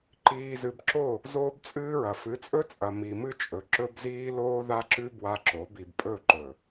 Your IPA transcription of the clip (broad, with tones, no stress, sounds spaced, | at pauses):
ǃ iː˨ z ɨ˨ b ǁ o˦˨ | z oː˦ b t͡sʼ ɨː˦ ɹ ɐ˨ f ɨ˨˦ t͡sʼ ɵ˦ t͡sʼ ɐ˨ m i˨ m ɨ˦ t͡ʃʼ ɵ˨ ǁ ɵ˦ b z iː˦ l oː˦ ð a˦ ǁ ʉ˦ b w a˦ ǁ o˨˦ b i˨ b pʼ ɵ˦˨ ǃ ɵ˨